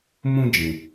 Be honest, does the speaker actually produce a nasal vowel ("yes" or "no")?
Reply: yes